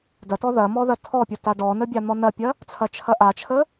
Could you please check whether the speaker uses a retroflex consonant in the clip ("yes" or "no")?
yes